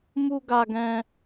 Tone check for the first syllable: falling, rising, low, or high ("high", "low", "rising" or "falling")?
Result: high